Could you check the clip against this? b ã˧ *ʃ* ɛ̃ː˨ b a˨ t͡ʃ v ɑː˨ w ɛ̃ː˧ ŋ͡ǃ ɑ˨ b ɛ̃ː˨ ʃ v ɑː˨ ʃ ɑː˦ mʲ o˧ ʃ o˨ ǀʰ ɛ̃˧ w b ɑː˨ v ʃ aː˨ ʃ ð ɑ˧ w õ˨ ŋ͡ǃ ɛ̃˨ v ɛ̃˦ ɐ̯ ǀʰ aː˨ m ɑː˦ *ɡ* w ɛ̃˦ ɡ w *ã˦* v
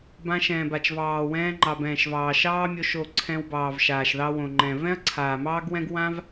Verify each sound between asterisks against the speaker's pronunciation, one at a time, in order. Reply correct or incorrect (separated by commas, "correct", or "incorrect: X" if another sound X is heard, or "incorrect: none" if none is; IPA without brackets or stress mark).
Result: correct, correct, correct